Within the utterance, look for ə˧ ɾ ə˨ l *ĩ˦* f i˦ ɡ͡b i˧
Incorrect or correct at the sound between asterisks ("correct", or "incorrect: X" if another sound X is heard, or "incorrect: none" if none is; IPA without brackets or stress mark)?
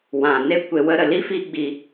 incorrect: i˦